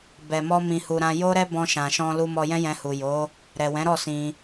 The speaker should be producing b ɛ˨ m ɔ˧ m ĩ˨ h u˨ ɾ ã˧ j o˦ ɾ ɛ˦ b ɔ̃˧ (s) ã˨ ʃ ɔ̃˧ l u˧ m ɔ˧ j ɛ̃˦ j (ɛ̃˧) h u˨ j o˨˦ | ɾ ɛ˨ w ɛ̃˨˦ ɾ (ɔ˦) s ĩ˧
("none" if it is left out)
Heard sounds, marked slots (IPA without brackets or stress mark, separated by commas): ʃ, ɛ̃˧, ɔ˦˨